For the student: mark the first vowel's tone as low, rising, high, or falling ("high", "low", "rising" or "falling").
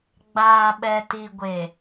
low